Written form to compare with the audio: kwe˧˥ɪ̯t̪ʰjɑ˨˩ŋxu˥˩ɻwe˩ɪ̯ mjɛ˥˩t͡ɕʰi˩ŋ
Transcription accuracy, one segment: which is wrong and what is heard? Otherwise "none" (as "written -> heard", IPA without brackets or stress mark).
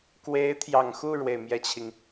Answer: none